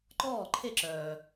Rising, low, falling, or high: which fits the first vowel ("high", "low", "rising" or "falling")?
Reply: falling